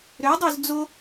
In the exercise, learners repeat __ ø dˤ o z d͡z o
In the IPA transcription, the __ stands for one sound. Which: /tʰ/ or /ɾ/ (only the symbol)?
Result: ɾ